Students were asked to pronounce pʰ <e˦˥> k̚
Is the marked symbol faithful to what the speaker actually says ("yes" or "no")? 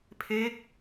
yes